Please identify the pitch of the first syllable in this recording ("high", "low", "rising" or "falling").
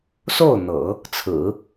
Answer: falling